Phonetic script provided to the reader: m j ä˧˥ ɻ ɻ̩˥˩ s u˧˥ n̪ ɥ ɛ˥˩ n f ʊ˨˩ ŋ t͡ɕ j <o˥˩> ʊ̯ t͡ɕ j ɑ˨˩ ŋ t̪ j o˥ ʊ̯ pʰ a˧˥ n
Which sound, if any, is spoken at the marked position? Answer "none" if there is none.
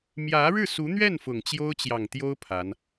o˥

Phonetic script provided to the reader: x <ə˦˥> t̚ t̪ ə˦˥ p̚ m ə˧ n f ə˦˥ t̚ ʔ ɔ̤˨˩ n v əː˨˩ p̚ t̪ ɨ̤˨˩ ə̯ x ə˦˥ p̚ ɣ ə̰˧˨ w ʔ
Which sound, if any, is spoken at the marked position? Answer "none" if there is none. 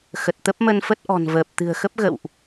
ə˨˩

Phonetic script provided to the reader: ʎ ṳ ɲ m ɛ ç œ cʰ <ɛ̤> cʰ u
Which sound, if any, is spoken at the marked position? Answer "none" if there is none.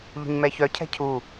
ɛ̤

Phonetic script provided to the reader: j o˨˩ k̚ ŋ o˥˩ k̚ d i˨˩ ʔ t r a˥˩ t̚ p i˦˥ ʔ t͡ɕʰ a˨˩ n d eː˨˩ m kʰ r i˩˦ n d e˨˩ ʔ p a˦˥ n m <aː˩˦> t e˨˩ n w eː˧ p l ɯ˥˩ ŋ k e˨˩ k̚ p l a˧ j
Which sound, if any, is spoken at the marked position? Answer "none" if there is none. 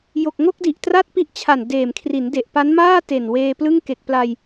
aː˥˩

